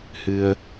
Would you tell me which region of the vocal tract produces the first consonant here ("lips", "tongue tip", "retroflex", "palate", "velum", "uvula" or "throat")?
throat